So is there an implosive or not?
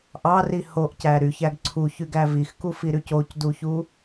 no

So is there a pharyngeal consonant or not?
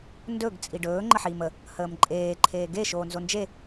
yes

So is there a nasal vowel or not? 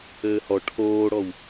no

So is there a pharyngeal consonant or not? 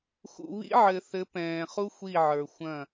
yes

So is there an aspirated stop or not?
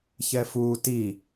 no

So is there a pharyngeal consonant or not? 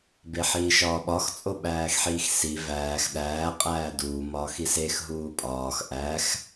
yes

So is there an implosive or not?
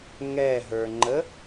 no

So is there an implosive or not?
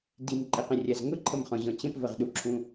yes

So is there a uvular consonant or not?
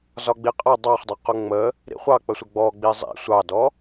yes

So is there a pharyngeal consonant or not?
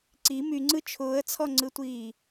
no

